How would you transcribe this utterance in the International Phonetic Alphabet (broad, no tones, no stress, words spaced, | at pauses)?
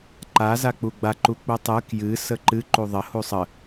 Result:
ǃa zak͡puɡ͡ba ǃuk͡putˤɨ kjɨ səǃɨ ǃuðˤə husˤə